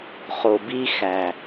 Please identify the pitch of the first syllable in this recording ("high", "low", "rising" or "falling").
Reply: low